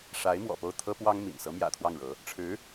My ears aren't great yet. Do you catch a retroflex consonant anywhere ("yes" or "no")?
yes